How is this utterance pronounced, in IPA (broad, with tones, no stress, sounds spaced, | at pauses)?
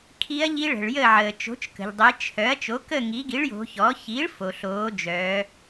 kʰ i˧˥ ɐ̯ ʎ i˧˥ ɭ ə̤˩ ɭ j ə˥˨ ʕ əː˩ t͡ʃ o̤˩˥ t͡ʃ k ə̤˩ ʎ dˤ i˩˧ t͡ʃʰ œ˩˥ ɐ̯ t͡ʃ o˩˥ k ə˥˨ ŋ i˩˥ ɡ i˩˥ ɭ j o̤˩˧ ç ɔ˩˥ ç iː˩˥ ɭ f o˩ ɬ oː˩˧ d͡ʒ œː˩˧